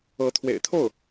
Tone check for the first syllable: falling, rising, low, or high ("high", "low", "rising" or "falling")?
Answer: rising